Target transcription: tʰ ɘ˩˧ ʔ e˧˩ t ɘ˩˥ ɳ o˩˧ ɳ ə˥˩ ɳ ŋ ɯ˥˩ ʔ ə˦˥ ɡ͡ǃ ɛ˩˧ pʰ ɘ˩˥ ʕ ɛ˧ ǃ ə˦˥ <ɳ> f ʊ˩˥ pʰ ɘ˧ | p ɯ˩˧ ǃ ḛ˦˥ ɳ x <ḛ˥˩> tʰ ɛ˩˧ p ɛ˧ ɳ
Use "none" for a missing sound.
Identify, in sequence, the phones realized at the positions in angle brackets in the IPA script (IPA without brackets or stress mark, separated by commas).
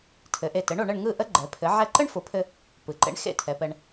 ɳ, ḛ˥˩